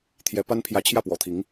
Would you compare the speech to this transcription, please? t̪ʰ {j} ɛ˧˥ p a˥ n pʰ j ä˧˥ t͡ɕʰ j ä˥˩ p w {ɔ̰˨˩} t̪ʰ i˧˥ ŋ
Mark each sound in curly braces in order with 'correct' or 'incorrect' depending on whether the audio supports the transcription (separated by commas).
correct, correct